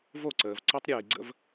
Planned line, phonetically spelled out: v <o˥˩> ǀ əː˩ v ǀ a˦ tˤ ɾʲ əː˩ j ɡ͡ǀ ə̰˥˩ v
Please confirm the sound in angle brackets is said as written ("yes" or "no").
yes